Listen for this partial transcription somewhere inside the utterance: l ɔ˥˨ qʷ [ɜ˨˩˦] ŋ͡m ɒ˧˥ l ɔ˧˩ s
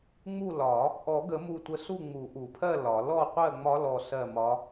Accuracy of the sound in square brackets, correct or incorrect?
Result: incorrect